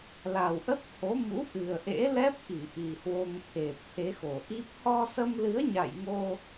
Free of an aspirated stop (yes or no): no